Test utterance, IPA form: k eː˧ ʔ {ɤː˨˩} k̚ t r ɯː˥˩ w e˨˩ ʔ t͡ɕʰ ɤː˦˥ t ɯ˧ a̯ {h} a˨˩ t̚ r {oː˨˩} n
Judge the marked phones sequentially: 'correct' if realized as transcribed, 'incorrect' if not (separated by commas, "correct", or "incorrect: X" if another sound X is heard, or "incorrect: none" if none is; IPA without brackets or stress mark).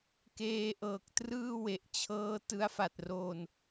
correct, incorrect: f, correct